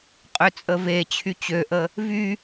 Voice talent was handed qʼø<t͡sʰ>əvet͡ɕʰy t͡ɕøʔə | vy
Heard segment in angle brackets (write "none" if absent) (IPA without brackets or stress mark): t͡sʼ